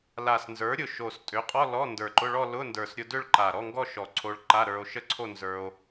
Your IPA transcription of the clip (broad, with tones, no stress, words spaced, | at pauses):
la˨˩snzə˞˩˥ɾʲʊ˨˩ ʃo˨˩stʼʏ˩˥qʼɔ˧˥˧ lɔ˧˥˧ ndə˞˨˩ǃʊ˧˥˧ɭɔ˥˧ lʊ˧˥˧ndə˞˨˩sɾʲʊ˧ dʏ˥˧ɭ ǃa˨˩ɾɔ˧˥˧ŋɡɔ˥˧ ʃɔ˨˩ǀʰo˧ɭǃa˧˥˧ ɾə˞˧o̯ʃə˥˧ǀʰo˥˧ nzə˞˧o̯